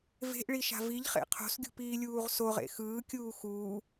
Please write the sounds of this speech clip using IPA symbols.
v e̤ ʔ ɭ i ʃ a̤ v i ʎ χ ḛ qʰ o̤ s ɡʲ ṳ p iː lʲ uː ʁ s o ʁ ḛ x ɯː kʲ uː x uː

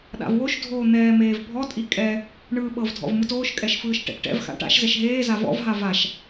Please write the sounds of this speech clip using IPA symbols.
ɗ a̰ v w o ʃ dʱ oː n̪ ɛː m eː v bʱ ɔ tʼ i kʼ ɛ | ɳ ɯː ɓ ɤ v dʱ ɔ̰ v m ɯ t oː ʃ kʼ ɛ ʃ f ɯː ʃ ʈ ɛ̰ t ʈ ɛ̰ v x a̰ ʈ a̰ ʃ z ɛ ʃ ɦ eː z a v ɔ̰ v ɦ a v a ʃ

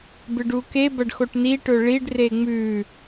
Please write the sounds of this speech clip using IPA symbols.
b ɨ ɖ u k e b ɐ ɖ x o ʈ n i ʈ ɵ ɭ i ɖ r e ŋ͡m ʉ

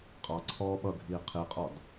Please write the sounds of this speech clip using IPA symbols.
qʼ ɑ ǀʰ ɔː ɓ ʌ ɡʱ iː qʰ i qʼ ɔ d

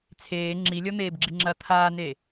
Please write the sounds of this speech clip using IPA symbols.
t͡sʰ eː ŋ͡ǁ i lʲ ɔ n̪ eː b ɡ͡ǁ i ŋ͡ǁ ɐ t̪ʰ aː n e

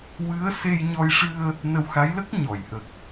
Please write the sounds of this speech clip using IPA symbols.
w ɨ˧˥ ə̯ s e˧ j ɲ ɔ˧ j ʂ ɨ˧ ə̯ | n ə˧ w x a˧˥ j l ə˦˥ k̚ ɲ ɔ˨˩˨ j ʔ ə˨˩ k̚

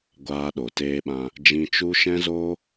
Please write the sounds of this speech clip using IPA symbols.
ɡʷ aː˧ ɗ o˨ t eː˧ ɓ ã˧ | d͡ʒ ĩ˧ t͡ʃ u˦ ʃ ɛ̃˦ z oː˦

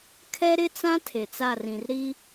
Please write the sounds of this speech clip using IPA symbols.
kʰ ɛ˦ ɾ ɪ˦ t͡s ã˦ tʰ e˨ t͡s a˦˨ r ĩ˨ r ɾ i˦

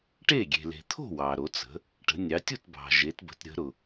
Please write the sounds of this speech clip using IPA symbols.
ʈ e˥˩ ɡʲ e̤˩ l e̤˩ t̪ʰ o̤˥˩ w ɑ˩ ɾ o˩˧ t͡s ə̤˩˧ | ʈ ə̤˩˧ nʲ ɑ˩˧ tʲ u˥˩ t b ɑ̤˩ ʒ e˩˧ t b ə̤˩˧ t ɾʲ ə̤˩˧ ɾ ʊ˩

